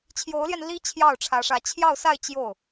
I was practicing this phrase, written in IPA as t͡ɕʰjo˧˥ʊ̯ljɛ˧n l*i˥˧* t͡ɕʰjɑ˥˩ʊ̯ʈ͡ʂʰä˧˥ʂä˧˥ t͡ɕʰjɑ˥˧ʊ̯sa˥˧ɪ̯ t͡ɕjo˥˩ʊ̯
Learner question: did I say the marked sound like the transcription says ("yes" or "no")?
no